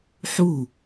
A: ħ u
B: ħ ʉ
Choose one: A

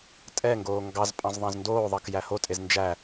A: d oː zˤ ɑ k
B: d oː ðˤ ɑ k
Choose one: B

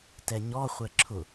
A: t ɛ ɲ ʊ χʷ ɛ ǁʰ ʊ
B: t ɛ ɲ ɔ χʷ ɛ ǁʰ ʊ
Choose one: B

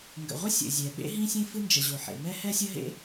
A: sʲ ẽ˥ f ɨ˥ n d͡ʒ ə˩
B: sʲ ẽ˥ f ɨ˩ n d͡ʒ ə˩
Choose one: A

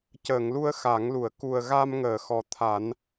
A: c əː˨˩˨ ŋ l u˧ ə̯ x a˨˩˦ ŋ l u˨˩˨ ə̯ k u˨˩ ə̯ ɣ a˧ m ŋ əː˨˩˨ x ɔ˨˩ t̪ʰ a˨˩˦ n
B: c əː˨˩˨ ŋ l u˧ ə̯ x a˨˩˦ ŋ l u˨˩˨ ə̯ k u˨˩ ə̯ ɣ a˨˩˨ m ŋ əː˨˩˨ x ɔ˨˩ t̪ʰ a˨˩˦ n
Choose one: A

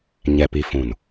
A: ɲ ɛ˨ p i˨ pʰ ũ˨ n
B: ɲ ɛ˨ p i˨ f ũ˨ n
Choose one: B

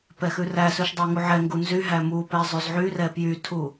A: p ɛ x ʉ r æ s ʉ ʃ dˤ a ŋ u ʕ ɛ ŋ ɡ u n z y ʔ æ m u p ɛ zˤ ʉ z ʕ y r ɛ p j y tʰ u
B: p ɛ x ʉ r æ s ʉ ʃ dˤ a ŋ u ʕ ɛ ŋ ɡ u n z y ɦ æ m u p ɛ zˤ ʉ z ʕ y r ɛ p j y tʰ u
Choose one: B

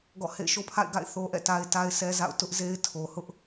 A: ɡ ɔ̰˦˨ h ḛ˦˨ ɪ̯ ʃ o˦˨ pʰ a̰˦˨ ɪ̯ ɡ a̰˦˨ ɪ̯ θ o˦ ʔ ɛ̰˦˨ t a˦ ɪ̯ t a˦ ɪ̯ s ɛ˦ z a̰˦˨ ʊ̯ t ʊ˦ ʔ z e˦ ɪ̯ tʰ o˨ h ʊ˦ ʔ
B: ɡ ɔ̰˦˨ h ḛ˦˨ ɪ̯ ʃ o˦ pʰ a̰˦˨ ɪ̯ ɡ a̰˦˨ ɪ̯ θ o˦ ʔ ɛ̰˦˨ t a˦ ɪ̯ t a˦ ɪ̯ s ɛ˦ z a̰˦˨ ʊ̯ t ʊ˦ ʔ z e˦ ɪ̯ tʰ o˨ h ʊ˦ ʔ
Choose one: B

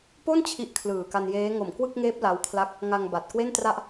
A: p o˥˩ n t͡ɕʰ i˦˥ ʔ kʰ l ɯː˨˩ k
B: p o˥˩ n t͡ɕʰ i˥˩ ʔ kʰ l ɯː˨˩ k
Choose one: A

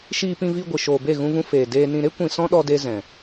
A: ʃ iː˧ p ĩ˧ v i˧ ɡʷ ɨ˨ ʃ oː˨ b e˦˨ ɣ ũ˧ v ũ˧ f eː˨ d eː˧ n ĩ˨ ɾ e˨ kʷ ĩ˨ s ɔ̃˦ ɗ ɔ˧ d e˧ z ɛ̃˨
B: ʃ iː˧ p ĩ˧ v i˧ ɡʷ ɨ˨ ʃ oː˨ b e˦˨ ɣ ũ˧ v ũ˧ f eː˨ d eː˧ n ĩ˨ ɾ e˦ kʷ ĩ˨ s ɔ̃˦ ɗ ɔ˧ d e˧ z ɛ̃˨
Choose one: B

